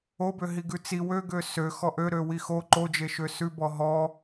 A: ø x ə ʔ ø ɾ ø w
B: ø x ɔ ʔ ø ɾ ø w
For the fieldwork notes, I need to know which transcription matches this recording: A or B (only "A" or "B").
B